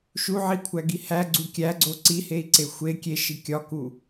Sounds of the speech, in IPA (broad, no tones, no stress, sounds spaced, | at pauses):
ʃ u ʕ i kʷʰ æ ɡ i h æ ɡ͡ǀ u kʲ æ ɡ͡ǀ o ǀ i h e i̯ ǀ e xʷ e kʲ e ʃ i kʲ ɒ k u